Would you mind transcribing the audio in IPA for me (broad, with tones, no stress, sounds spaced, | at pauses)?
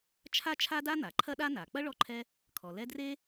t͡ʃʰ a˥ t͡ʃʰ a˥ d a˥ n̪ a˩ ǃʰ ɐ˥ ɗ a˥ n a˩ k͡p ɐ˥ ɭ ɔ˦ ǃʰ ɛ˦ | kʰ ɔ˩ l ɛ˦ d r e˥